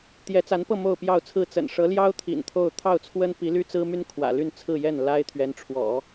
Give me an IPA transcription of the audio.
t̪ j ɛ˧˥ t͡s a˧˥ n p ɤ˥˧ m o˥˧ ʊ̯ p j ɑ˥˧ ʊ̯ t͡sʰ ɹ̩˥˩ t͡s ə̰˨˩ n ʂ ɤ˧˥ l j ɑ˥ ʊ̯ t̪ʰ ḭ˨˩ n t̪ʰ o˥˧ ʊ̯ t̪ʰ ɑ˥˩ ʊ̯ t͡sʰ w ə˥ n p i˧˥ l y˥ t͡s ɹ̩˥ m y˥ n kʰ w ä̰˨˩ l y˥˧ n t͡sʰ ɹ̩˥˧ j ɛ˥˩ n l a˥ ɪ̯ t̪ʰ ɥ ɛ˧˥ n ʈ͡ʂʰ w ɔ̰˨˩˦

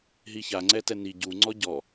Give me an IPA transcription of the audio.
ɦ i ç a ŋ͡ǀ ɛ t ɛ n i ɟ u ŋ͡ǀ ɔ ɟ ɔ

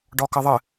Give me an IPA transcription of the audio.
ɖ ɒ k ə ðˤ ɘ

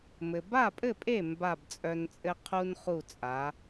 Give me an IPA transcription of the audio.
m ɘ˩ b a˥˩ pʼ ɘ˥˩ pʼ e˥˩ m b a˥˩ b t͡sʼ œ˧ n t͡sʼ ɘ˥ qʰ u˥ n χ u˥˩ t͡sʼ a˩˥

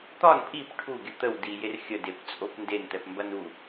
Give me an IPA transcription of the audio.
t̪ ɒ n pʼ i p ʈʰ u ɡʲ ə t̪ ə w d i j e r xʲ ə d e p t͡sʼ o p n d e n t̪ ɛ p m b ɐ n u

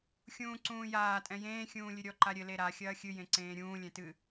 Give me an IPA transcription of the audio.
xʲ ũː ǀ ũː j aː tʼ ɛ̃ j ẽː xʲ ũː lʲ ɨ ɾʲ ɔ ǃ a ɾʲ ɘ l e ɾ a xʲ ɐː xʲ ɨ j ẽ ǀ ẽː ɾʲ ũː lʲ ɛ̃ t ɨ

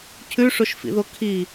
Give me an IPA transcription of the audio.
cʰ ʉ ʂ o ʃ f ḭ ð o kʰ i

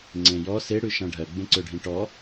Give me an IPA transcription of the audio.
ŋ͡ǀ ẽ j ɔ s e ɽ ʉ ʃ ã ɖʱ ɜ ɡ͡b ẽ ǀ ø ɖʱ ĩ ʈ ɔ

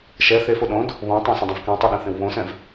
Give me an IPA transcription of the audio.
ʃ ɛ θ e f o ɗ õ d | β õ tˤ ɐ̃ s ɐ̃ dˤ ɐ̃ v k ɛ̃ tˤ ɛ ɗ ɐ̃ θ ẽ w β õ s ɛ̃ v

